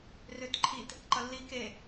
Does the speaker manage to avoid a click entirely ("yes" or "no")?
no